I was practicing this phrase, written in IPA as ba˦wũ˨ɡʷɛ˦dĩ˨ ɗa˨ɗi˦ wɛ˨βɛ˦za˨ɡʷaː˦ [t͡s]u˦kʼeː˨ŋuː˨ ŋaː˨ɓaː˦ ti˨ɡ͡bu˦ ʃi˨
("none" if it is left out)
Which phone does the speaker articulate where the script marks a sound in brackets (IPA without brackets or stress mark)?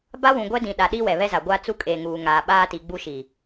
t͡s